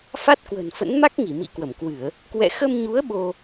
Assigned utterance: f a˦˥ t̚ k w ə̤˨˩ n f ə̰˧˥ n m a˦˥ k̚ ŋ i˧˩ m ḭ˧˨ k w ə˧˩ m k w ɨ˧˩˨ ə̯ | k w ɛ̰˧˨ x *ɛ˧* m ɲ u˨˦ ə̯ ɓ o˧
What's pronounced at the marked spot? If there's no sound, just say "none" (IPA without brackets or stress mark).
ə˧